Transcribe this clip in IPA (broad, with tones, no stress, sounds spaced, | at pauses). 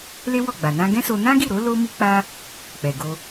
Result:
l e˦ w ɔ˦˨ ɡ͡b a˨ n ã˧ ɡ ɛ̃˦ s o˧ n ã˦ ɡ i˦˨ ɾ o˨˦ l o˦ m i˦ k͡p a˦ | k͡p ɛ˨ ɡ o˧